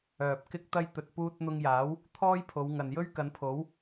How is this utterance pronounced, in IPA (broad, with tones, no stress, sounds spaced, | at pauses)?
œː˨ p̚ k ɪ˥ k̚ t̪ ɐ˥ j t̪ ɵ˨ t̚ p uː˧ t̚ n̪ ʊ˧ ŋ j aː˨˥ w | t̪ʰ ɔː˥ j pʰ o˨˧ w ŋ ɐ˨ n j ɵ˥ ɥ k ɐ˨˧ n pʰ o˨˥ w